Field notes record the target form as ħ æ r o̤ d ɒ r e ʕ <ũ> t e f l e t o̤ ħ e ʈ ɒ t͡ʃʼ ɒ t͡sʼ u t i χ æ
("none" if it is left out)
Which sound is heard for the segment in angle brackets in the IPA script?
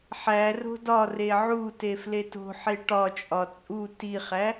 u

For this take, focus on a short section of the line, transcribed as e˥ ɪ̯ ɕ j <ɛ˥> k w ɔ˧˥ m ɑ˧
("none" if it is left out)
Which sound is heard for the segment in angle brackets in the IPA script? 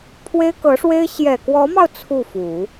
ɛ˨˩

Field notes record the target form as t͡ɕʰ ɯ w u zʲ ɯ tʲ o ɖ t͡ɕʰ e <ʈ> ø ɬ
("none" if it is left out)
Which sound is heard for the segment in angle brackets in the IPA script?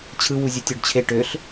ʈ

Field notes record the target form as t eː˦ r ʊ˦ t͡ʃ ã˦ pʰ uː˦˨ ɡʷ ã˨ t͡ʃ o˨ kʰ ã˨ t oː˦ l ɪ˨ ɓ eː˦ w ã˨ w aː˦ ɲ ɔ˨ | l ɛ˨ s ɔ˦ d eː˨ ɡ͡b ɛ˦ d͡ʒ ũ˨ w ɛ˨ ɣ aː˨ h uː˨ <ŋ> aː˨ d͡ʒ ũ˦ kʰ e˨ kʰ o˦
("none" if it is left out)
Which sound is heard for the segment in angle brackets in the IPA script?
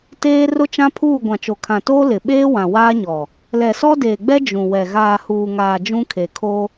ŋ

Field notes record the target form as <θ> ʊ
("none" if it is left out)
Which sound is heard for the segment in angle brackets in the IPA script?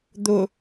d̪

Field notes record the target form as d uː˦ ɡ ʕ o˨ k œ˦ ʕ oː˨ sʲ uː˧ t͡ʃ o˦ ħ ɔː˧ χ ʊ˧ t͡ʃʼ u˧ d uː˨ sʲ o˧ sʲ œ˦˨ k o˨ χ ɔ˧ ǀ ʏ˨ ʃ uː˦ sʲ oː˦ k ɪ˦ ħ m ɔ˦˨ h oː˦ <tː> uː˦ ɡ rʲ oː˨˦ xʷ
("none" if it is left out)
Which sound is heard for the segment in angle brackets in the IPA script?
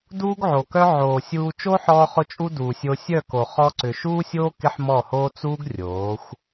t͡s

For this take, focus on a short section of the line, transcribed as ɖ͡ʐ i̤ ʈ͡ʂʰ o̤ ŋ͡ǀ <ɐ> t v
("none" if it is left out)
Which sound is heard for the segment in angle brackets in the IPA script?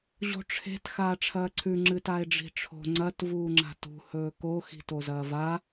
ɐ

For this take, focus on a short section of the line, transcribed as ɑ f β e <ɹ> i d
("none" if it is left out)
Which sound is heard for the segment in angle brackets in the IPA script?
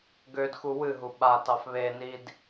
n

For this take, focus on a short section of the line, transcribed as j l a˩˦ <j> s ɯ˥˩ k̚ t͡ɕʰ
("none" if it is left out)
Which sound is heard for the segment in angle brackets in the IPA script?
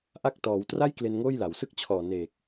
w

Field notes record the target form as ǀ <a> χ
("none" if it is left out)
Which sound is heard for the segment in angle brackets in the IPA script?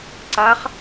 a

